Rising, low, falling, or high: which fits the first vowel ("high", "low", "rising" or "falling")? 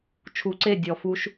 low